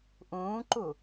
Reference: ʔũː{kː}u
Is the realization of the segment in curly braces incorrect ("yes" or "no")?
yes